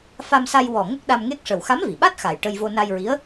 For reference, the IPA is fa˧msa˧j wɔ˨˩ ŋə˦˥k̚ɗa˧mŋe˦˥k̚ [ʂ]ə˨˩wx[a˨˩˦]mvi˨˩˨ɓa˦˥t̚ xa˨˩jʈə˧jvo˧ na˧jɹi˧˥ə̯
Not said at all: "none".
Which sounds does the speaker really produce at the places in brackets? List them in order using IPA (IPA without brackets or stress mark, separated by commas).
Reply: ʂ, a˧˥